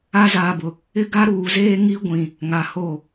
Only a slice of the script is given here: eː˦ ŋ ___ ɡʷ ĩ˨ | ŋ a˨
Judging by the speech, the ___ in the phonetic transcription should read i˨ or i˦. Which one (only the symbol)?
i˦